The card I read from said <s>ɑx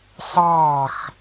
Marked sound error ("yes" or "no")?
no